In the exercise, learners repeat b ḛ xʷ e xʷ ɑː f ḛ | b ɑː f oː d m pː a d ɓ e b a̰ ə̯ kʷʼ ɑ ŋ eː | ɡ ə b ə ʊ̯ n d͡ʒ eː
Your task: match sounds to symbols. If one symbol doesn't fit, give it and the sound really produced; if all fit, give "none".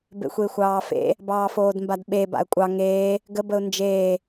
pː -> b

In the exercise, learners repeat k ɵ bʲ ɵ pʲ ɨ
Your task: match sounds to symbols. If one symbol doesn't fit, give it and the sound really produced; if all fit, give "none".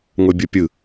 k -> ŋ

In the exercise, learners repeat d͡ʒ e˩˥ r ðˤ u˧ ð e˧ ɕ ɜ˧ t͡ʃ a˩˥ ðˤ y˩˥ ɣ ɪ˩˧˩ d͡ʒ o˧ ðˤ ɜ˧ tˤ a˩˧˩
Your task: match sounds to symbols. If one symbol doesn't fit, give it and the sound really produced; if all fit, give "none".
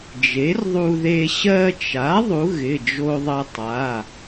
y˩˥ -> u˩˥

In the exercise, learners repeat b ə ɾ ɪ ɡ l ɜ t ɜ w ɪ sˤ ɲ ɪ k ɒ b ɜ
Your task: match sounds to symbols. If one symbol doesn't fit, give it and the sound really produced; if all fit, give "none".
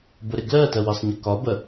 none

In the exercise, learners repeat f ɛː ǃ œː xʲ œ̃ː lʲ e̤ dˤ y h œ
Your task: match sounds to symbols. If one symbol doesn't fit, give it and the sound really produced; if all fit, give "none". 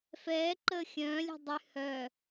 œː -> əː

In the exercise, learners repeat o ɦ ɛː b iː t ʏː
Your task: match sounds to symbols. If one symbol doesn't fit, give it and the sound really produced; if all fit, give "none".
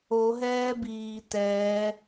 ʏː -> ɛː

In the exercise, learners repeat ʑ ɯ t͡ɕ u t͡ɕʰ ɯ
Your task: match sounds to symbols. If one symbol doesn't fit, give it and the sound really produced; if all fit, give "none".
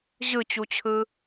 none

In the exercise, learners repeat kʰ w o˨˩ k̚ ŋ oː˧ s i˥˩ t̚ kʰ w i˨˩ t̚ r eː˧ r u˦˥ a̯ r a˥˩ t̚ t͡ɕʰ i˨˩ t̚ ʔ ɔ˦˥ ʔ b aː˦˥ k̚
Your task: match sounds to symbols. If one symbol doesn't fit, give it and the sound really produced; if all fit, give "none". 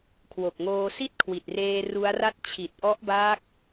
none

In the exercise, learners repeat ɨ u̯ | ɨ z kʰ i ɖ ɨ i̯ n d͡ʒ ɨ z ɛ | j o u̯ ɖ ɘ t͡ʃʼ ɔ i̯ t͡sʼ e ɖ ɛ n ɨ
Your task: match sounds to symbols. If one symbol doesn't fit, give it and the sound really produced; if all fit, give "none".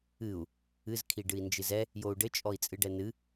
e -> ɨ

